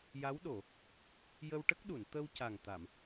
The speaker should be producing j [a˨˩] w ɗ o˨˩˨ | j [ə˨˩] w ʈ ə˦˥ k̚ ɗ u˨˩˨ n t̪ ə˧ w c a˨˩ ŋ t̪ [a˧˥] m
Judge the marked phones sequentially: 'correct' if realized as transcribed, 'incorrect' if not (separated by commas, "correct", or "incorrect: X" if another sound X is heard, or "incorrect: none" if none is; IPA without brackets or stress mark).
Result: incorrect: a˧˥, incorrect: ə˧, incorrect: a˨˩˨